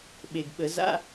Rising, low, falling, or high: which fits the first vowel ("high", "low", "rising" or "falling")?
low